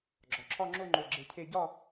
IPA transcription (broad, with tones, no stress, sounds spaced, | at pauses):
ɡ͡ǁ ɒ˩˧ ǁʰ ɒ˥˧ ŋ͡ǁ o˥˧ ŋ͡ǃ o˧˩ ɡ͡ǁ e˧ cʰ e˥˧ ɟ ɒ˥˧